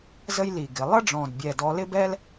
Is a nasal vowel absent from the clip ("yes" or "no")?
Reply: no